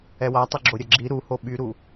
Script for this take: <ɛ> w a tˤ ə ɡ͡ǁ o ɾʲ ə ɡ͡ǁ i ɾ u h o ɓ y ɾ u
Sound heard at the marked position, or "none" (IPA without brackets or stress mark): ɛ